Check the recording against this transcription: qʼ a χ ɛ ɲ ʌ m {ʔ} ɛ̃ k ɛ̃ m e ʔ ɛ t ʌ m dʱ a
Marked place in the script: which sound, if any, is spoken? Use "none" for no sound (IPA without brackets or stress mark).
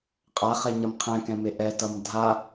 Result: qʰ